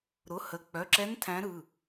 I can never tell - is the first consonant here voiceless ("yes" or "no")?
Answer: no